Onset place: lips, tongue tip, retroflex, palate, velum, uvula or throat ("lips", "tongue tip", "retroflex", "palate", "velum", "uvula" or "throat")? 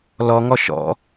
tongue tip